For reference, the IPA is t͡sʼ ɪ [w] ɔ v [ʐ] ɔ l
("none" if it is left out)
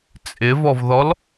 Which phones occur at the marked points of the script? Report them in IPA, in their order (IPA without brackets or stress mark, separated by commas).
v, ð